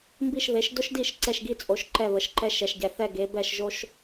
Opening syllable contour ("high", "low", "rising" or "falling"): falling